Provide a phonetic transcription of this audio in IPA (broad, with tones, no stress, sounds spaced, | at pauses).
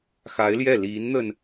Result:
x a˧˥ ɪ̯ l j ɛ˥˩ l i˧˥ n n̪ ə˧ n